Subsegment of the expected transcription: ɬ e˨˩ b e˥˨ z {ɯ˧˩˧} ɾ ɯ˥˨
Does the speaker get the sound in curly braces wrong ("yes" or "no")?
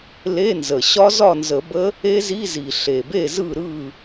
yes